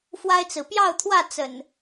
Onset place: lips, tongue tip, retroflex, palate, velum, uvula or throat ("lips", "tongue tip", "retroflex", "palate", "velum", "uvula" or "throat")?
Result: lips